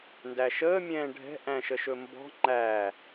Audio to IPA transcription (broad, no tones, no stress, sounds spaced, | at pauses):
n d æ ʃ əː mʲ ɛ̃ː ɖʱ ɛ̤ ʔ æ̃ ʃ ə ʃ ɵ m b ɔ̤ ŋ͡ǃ æ